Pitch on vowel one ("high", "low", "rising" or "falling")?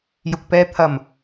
low